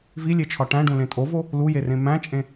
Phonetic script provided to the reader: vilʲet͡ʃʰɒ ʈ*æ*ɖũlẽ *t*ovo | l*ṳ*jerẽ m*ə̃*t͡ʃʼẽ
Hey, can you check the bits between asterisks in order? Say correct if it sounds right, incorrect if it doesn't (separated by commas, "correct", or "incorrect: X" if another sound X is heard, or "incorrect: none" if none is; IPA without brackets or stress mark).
incorrect: æ̃, incorrect: tʼ, incorrect: u, incorrect: æ̃